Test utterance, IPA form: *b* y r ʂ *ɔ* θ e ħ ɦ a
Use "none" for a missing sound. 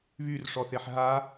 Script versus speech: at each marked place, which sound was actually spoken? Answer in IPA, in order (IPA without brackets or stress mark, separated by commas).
β, ɔ